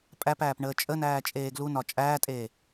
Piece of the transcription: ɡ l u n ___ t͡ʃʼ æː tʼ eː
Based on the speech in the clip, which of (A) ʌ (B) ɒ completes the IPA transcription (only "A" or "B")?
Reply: B